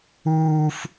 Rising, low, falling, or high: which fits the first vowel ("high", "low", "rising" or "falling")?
high